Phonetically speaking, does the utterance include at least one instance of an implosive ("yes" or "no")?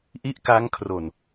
no